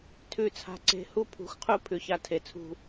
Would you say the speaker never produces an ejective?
yes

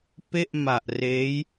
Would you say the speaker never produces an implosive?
yes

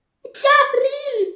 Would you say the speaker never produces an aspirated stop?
yes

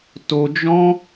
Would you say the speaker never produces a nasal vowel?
no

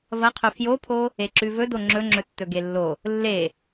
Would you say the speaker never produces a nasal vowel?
yes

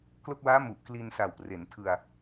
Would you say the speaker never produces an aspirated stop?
no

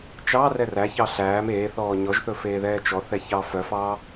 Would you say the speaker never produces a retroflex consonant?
yes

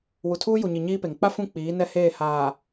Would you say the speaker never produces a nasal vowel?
no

